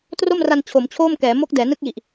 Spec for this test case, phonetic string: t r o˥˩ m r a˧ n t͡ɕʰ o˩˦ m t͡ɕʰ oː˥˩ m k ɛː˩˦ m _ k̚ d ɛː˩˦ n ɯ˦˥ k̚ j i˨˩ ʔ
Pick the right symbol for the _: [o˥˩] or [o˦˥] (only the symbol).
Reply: o˦˥